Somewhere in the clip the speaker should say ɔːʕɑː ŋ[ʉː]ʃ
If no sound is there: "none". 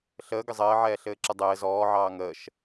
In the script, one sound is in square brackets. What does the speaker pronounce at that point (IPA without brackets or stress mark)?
əː